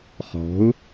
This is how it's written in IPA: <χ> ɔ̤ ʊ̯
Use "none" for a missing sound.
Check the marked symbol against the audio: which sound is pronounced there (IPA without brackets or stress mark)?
χ